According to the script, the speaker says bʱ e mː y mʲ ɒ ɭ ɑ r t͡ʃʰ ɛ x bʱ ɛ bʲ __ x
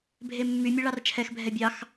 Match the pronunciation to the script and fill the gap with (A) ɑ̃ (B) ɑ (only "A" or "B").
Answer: B